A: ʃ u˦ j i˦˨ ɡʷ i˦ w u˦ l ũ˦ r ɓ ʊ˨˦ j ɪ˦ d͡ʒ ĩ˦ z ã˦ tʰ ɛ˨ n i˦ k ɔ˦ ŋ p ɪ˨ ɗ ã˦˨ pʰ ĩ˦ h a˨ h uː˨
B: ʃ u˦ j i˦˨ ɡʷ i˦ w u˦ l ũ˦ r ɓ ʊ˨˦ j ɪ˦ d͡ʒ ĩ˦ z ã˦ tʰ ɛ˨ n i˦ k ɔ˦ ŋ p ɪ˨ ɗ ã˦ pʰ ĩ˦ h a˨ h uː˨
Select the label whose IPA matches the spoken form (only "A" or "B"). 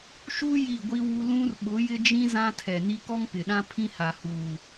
B